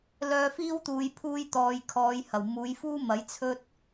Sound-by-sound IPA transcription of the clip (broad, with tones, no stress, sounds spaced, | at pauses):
l œː˧ f iː˥ w t̪ uː˨˧ j pʰ uː˧ j t̪ ɔː˨ j kʰ ɔː˨˧ j h ɐ˨˩ w m uː˨˧ j f uː˥ m ɐ˨˥ j t͡sʰ ɵ˥ t̚